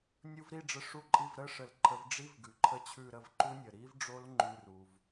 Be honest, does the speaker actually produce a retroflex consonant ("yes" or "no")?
yes